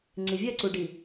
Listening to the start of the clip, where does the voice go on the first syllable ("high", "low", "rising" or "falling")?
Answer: low